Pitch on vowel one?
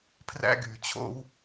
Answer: high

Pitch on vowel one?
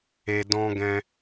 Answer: low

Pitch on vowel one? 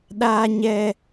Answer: high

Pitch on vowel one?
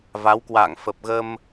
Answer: rising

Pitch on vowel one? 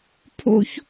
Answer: high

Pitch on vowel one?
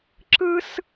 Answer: high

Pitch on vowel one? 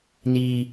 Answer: high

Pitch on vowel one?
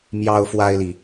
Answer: high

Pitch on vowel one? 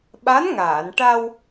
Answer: rising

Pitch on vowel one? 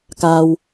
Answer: low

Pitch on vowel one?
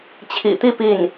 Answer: low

